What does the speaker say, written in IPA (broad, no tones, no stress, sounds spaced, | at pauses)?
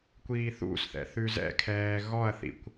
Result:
kʷ iː θ ṵ s θ ɛ̰ θ ʉ z ɛ̰ kʰ ɛː ɣ ɔ ɐ̯ θ ḭ kʷ